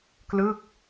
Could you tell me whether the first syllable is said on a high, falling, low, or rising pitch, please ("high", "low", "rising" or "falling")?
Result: falling